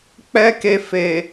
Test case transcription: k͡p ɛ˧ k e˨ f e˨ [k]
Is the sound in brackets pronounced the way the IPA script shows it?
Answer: no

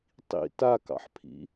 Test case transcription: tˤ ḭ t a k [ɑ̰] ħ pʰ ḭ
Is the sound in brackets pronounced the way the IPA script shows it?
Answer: yes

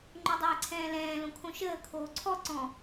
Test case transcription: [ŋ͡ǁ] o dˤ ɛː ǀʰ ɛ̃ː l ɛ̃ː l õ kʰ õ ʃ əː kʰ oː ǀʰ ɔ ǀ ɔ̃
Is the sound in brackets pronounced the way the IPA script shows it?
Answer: no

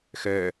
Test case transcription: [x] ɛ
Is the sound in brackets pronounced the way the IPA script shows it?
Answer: yes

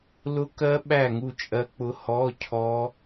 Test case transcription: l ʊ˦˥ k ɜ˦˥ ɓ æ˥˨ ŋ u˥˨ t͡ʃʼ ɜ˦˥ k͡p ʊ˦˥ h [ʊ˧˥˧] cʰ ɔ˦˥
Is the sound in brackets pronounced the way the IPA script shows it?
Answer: no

